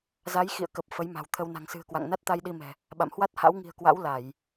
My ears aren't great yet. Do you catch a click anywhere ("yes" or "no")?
no